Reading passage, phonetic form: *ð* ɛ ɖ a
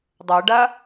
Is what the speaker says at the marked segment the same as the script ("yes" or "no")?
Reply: no